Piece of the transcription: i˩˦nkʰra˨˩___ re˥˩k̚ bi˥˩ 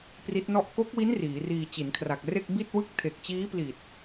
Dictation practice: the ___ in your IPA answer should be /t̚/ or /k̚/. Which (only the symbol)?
k̚